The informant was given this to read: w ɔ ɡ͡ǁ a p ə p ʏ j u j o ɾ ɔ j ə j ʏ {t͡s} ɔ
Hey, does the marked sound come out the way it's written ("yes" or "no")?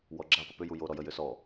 no